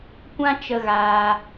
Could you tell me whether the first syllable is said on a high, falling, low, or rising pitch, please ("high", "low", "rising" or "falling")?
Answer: high